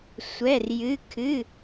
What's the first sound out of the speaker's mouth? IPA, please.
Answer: sʷ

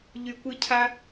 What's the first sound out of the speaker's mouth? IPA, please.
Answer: ʎ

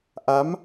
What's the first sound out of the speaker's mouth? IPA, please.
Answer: ʔ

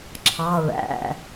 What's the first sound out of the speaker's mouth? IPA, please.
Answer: ǁʰ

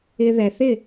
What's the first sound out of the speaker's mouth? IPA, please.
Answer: ɪ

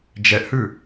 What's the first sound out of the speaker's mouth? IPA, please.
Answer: d͡ʒ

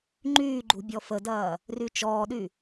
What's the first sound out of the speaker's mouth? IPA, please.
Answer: ŋ͡ǃ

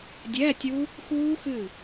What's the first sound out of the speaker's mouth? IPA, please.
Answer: dʲ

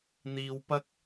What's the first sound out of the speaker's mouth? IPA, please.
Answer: n̪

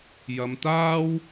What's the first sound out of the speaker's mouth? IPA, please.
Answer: j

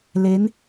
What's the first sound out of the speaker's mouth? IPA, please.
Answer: l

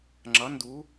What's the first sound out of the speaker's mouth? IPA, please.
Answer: ŋ͡ǁ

